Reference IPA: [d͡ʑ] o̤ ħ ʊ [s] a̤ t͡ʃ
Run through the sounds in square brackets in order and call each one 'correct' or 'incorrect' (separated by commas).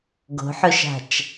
incorrect, incorrect